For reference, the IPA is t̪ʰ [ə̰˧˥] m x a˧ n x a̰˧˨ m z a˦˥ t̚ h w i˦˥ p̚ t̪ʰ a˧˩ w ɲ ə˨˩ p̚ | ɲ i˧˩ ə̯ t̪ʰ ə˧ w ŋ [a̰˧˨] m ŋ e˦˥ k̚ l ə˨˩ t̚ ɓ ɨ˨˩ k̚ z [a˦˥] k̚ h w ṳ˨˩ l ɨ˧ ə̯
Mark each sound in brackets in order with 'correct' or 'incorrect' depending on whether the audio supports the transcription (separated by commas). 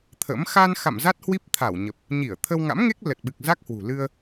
correct, incorrect, correct